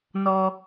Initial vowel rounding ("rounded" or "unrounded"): rounded